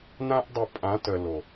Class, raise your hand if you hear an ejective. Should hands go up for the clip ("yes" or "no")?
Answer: yes